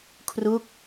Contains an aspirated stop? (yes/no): yes